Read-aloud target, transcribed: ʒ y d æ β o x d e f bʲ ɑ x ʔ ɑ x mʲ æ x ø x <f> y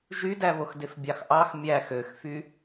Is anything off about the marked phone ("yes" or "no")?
no